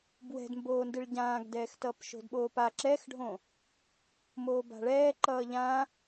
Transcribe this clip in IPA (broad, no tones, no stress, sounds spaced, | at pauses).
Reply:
b w ɛ̤ d m b oː n d ɨ ɭ ɟ ãː ɡ d ɛː x t ʌː p ʃ o̤ d ɓ oː p a ǁ ɛ x ɖʱ õ | m oː b a̤ ɭ ɛː ǃ ʌː ʎ ã